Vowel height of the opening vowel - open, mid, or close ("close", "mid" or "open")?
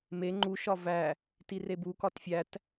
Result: mid